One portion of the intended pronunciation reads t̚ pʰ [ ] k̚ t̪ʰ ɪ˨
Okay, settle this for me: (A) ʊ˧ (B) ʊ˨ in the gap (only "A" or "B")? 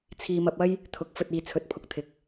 A